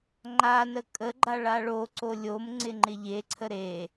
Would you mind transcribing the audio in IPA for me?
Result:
ŋ͡ǃ a n ə kʼ ə ɡ͡ǃ a ɭ a ɭ o ǀ o lʲ o m ŋ͡ǀ ɪ ŋ͡ǃ ɪ ʎ e ǀʰ ə ɾ e

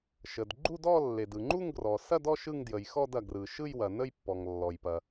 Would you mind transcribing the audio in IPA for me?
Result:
ʃ ə˩ d ɡ͡ǃ u˥˧ d ɔ˥˧ lː e˩ d ɯ˩ ŋ͡ǃ u˥˧ ŋ ɡ r ɔ˩ s ɐ˥˧ d ɔ˥˧ ʃ ɯ˥˧ ŋ d j ə˩ j x ɔ˥˧ d ɐ˩ ɡ r ɯ˩ ʃ ɯ˥˧ j w ɐ˩ n ə˥˧ j pː ɔ˩ ŋ lː ɔ˩ j p ɐ˩

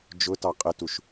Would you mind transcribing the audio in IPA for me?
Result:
d͡ʒ ʊ t ɑ qʼ ɪ t u ʃ

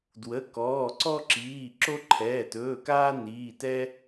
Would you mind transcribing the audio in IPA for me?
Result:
d w ə˩˧˩ k ɔː˩˧˩ ǀ ɔ˦ ǁ iː˩˧˩ ǁ o˦ ǃʰ ɛː˩˧˩ t ɵː˩˧˩ k aː˦ n iː˩˧˩ t ɛ˦

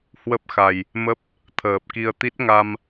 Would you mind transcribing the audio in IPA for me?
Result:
h w ə˦˥ p̚ x a˨˩ j | m ə˦˥ p̚ | t̪ʰ əː˨˩ p̚ k i˧ ə̯ t̪ i˦˥ t̚ ŋ a˧ m

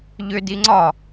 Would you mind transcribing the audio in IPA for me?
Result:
ʎ ʏ d i ŋ͡ǀ ɒ

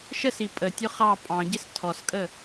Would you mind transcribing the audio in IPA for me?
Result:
ʃ ə s i pʼ ə tʲ ʊ χ ɑ pʼ ɑ̃ ɟ ɪ s tʰ ɔ s kʼ ə

